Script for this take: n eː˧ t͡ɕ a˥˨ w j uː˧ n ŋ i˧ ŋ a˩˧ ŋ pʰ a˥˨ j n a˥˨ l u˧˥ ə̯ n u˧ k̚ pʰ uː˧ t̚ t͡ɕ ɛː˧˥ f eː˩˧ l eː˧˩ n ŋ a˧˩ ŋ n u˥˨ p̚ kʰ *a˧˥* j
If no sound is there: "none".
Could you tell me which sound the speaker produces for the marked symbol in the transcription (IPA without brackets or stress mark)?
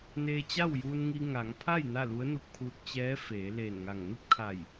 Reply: a˧˩